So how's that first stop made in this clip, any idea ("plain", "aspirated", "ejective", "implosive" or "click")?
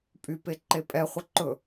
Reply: ejective